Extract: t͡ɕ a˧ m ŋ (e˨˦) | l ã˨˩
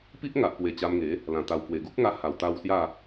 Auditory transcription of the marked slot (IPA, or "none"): e˨˦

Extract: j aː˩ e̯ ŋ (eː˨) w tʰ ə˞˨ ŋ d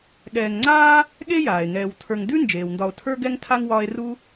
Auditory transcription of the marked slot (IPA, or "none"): ɛː˨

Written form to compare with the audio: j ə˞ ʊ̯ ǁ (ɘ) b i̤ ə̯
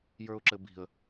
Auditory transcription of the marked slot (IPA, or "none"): ɘ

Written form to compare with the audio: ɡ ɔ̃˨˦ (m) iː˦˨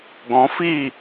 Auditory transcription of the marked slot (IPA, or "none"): f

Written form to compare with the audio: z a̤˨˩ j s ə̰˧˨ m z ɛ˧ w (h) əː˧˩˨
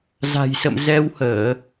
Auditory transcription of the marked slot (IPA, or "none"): h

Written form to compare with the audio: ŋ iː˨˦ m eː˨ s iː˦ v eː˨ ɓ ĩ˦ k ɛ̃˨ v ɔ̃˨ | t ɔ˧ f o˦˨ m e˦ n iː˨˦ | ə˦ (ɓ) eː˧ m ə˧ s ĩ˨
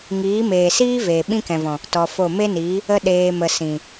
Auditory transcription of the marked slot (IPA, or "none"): ɗ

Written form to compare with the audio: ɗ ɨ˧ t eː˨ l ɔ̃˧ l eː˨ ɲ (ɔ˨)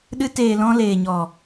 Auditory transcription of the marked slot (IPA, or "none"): ɔ˨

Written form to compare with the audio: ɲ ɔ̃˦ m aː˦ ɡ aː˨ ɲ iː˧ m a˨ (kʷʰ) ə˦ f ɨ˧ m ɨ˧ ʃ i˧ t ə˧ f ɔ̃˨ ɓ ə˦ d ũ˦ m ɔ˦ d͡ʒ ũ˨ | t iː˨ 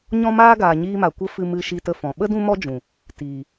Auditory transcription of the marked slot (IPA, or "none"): kʷ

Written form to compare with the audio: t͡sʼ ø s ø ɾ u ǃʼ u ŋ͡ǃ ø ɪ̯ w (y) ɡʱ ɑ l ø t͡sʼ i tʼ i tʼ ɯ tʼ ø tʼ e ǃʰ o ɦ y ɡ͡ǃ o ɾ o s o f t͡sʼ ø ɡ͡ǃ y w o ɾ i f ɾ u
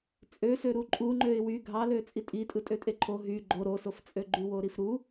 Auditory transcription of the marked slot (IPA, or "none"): y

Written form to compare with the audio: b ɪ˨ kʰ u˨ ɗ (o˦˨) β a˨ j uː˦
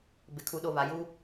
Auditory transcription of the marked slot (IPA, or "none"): o˦˨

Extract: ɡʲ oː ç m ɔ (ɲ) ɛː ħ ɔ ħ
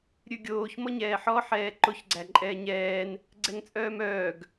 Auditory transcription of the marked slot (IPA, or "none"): ɲ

